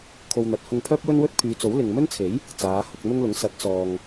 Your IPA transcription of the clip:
kʰo˧wn̪ɐ˨˥t̚ hʊ˧ŋpʰœː˥p̚wɵ˥n wɵ˥t̚pʰyː˨˧t͡so˨˥w lɪ˨ŋmɵ˥nt͡sʰe˨˥j | t͡saː˨˧hʊ˧k̚n̪ʊ˥ŋlʊ˨˥ŋ sɐ˨˥t̚t͡sɔː˨ŋ

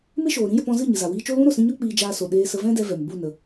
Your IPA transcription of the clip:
me˦ʃoː˨ ɾĩ˦jə˧pɔ̃˧zɨ˦˨ ɲɨ˨za˨wiː˧t͡ʃo˦ lũ˦ɾo˨sĩ˧ɲɔ˦ k͡piː˧d͡ʒaː˧so˨ ɗeː˧sə˧ vɛ̃˦dɛ˧ vɛ˨m bu˦˨ nə˧

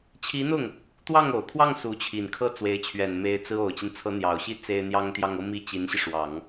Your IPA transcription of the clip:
t͡ɕʰi˧˥n̪ʊ˥˩ŋ | t̪wɑ˥˩ŋo˨˩ʊ̯kʰwɑ˥˩ŋ su˧˥t͡ɕʰi˨˩nkʰɤ˥˩ t͡swe˧˥ɪ̯t͡ɕʰɥɛ˨˩nme˧˥ɪ̯ t͡sɹ̩˥ o˨˩ʊ̯t͡ɕi˦nt͡sʰɤ˧˥ n̪jɑ˨˩ʊ̯ɕi˥ t͡se˥ɪ̯n̪jɑ˥ŋt̪jɑ˥˧ŋ ɤ˥˧ mi˥˩t͡ɕi˧˥nɕi˧ʂwɑ˨˩˦ŋ

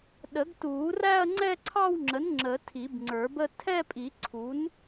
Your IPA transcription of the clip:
ɗə˨˩˦ɡtuː˨˩˦ræ˥˧ɐ̯ ŋ͡ǀɛ˥˧ǀʰɑ˥˧wŋ͡ǁə˩˥n ŋ͡ǁə˨˩˦ tʰi˨˩˦bŋ͡ǀə˞˨˩˦bə˥˧ tʰɛ˥˧pʼi˨˩˦ ǀʰu˩˥n

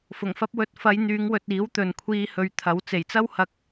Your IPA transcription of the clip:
fʊ˨˩ŋfɐ˧p̚wɵ˨˥t̚ fɐ˨˧jn̪yː˨˧ŋwɵ˨t̚ iː˨˥wt̪ɵ˨nkʷʰiː˧ hɵ˨ɥt̪ʰɐ˨˥w t͡se˨˩jt͡sɐ˥whɐ˧k̚

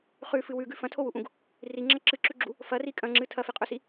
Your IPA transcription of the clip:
χʉfɨ wʉɡʉ fɐ̃tʰowuʔũɡ | riŋ͡ǁɐ ǁɨǁʉɡ͡ǁu | fɐri kʼɐ̃ŋ͡ǁɨ tʰɐfiqʼɵsi

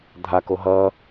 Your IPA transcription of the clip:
dʱako ɦʌ

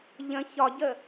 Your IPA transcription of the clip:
ʎə̃ çɒɟə

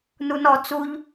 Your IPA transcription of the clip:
nunɔ t͡suʎ

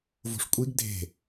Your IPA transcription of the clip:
vo̤ʂkʷʼiɡ dʱe̤

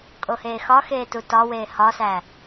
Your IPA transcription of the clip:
kʼoheːxɒ xeːtutɒweː hɒsæ

